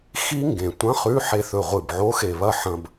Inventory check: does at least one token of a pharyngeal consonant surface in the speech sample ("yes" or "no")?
yes